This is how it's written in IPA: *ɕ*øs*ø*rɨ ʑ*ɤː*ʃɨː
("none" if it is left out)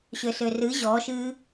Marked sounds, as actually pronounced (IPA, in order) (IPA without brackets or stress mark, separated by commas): ɕ, ø, ɔː